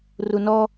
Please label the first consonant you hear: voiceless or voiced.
voiced